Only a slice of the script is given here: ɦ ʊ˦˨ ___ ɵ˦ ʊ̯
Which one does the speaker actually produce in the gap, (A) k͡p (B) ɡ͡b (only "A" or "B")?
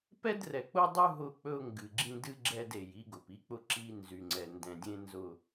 A